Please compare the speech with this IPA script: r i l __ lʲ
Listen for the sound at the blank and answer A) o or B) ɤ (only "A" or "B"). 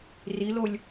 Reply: A